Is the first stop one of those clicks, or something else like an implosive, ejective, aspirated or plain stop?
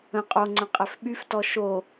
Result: ejective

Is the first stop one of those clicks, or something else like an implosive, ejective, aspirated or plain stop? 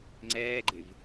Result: click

